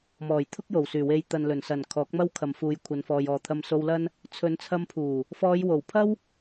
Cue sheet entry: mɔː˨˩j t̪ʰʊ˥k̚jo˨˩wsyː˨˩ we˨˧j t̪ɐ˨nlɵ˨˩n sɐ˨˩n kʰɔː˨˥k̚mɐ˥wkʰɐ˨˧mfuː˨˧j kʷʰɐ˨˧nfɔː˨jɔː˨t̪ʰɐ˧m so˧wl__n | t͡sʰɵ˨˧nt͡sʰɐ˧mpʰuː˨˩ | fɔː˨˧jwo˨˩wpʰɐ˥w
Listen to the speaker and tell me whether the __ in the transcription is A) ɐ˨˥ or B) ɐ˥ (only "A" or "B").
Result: B